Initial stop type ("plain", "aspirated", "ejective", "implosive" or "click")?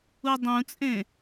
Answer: plain